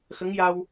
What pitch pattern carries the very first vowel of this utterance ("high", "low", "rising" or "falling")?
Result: rising